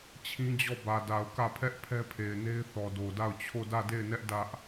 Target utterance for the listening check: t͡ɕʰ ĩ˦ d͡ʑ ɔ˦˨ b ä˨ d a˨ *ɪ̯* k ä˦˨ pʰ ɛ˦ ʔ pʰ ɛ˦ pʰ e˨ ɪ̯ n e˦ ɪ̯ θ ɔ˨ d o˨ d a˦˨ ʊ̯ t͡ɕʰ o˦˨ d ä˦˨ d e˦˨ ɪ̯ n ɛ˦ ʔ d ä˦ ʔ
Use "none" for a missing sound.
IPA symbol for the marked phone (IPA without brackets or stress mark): ʊ̯